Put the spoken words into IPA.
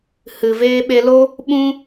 h ɨ˨ v eː˧ ɓ e˧ l o˦ | ɓ ũ˦

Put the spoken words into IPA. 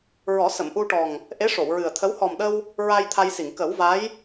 ɹ ɔ˨˩˦ s ə˨˩˨ m ʔ u˧ ʈ ɔ˨˩ ŋ | ʔ e˧˥ ʂ o˨˩˨ w ɹ ɨ˨˩ ə̯ t̪ʰ ə˧˥ w h ɔ˨˩ m ɗ ə˧ w | ɹ a˧ j t̪ʰ a˧ j s i˨˩˨ ŋ k ə˨˩˦ w v a˧˥ j

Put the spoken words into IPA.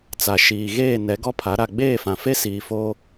t͡s a˨ ʃ iː˨ ɣ eː˦˨ n ɛ˨˦ ɡ ɔ˦ pʰ a˨˦ ɾ a˨ ɡ͡b eː˦˨ f ã˨ f e˦ s iː˨ f o˦

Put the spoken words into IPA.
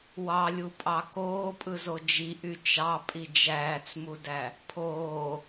w ɑ lʲ u pʼ ɑ k oː pʼ ɯ z o d͡ʒ i ʔ y t͡ʃ ɑ pʼ i d͡ʒ æː t͡s m u d æ | pʰ oː

